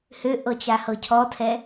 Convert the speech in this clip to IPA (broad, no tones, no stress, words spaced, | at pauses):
høʔɤ t͡ʃahɤcʰɔtʰɛ